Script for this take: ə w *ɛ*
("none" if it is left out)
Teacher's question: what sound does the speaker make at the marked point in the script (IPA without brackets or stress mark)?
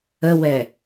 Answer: ɛ